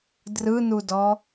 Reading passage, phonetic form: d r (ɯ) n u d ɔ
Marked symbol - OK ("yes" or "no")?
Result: yes